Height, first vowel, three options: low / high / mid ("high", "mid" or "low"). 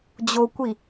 mid